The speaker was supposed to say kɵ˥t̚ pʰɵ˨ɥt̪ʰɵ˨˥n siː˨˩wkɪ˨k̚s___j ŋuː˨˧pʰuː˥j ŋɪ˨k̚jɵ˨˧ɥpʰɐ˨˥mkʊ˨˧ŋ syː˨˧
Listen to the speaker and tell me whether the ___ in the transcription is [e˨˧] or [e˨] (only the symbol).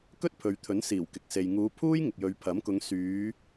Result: e˨